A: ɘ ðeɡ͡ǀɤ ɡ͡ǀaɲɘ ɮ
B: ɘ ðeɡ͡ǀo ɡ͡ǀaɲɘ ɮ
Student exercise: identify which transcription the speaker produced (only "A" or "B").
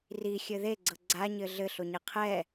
A